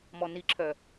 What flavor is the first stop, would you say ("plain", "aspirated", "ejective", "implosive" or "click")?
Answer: click